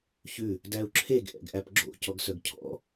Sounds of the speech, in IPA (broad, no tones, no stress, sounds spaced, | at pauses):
ç ʉ | d æ u̯ ǁʰ e ɡ ʔ ɛ̰ ɡ ʔ æ p ɡ͡ǁ o̰ c ɔ ɡ s œ ɡ cʰ ɔ̰